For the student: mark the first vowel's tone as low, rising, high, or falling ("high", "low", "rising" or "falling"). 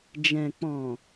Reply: low